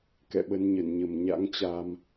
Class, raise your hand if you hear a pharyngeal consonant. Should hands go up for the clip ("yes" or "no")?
no